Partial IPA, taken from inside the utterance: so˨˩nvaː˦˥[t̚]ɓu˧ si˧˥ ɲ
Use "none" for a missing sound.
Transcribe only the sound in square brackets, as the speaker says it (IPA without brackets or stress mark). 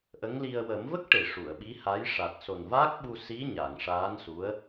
k̚